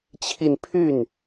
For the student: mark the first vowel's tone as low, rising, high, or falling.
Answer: falling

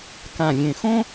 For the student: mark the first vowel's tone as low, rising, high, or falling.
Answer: low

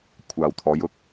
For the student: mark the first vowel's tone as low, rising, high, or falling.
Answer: low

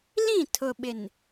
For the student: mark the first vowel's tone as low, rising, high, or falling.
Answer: falling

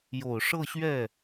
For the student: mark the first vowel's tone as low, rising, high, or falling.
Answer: low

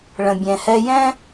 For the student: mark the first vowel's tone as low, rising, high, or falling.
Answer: low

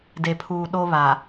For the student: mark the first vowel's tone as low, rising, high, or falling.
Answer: low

